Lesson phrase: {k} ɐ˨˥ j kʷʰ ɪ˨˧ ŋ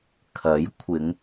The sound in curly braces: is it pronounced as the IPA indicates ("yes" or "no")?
no